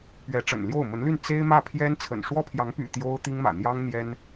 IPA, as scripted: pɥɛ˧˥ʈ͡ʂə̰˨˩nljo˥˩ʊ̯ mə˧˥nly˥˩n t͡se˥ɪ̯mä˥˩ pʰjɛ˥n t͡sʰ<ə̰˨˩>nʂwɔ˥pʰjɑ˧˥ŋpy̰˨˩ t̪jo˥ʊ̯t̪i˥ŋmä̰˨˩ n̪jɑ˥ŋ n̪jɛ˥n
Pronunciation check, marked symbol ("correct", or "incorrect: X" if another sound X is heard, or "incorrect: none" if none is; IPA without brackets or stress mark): correct